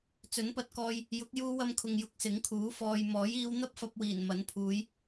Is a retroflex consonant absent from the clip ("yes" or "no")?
yes